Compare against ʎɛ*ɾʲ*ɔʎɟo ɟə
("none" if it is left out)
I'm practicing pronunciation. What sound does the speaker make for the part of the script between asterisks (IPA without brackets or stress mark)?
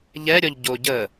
ɾʲ